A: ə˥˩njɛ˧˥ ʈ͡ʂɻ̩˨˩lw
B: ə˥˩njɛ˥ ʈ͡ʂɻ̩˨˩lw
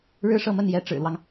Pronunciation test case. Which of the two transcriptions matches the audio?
A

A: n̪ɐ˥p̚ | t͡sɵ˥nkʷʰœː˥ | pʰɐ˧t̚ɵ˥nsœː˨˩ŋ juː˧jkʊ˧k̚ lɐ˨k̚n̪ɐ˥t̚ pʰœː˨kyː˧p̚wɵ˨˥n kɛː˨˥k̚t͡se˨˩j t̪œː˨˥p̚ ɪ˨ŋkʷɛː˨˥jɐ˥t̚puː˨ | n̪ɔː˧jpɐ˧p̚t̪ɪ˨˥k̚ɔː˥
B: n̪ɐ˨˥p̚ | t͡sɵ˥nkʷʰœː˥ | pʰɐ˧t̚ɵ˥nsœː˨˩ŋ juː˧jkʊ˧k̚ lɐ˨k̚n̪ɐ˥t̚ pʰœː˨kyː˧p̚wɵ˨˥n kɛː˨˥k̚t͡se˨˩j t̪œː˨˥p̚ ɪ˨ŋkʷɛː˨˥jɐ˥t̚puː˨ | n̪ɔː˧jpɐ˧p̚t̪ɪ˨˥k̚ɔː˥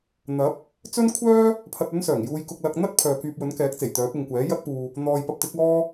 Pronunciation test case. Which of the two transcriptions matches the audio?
B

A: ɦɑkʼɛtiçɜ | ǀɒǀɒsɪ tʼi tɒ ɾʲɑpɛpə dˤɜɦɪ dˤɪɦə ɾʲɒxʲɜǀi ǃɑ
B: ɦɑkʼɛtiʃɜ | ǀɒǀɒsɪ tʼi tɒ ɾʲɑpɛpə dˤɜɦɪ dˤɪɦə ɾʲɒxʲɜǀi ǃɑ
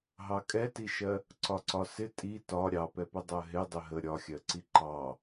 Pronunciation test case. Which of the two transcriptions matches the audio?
B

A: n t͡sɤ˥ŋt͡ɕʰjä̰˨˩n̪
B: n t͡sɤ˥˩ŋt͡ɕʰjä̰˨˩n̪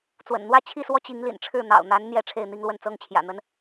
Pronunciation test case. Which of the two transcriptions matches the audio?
A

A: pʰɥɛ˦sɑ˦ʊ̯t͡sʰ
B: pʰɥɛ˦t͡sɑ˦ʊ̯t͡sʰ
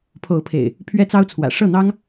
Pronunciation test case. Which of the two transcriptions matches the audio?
B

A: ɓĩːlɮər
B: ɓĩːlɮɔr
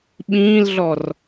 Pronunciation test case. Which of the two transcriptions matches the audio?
B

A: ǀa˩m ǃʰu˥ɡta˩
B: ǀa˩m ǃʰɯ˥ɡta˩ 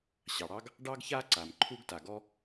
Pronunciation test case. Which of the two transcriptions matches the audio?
A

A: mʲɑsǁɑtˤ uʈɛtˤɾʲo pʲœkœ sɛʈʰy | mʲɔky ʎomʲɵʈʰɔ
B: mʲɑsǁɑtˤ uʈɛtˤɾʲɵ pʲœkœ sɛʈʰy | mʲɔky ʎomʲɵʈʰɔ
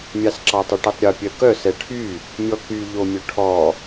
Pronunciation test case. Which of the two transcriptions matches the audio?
A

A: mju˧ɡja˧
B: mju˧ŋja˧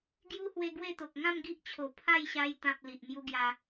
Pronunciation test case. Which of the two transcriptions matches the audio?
A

